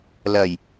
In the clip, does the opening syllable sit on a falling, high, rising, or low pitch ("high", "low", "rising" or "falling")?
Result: low